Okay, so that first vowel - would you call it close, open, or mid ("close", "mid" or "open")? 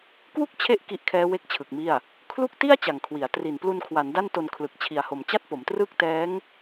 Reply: close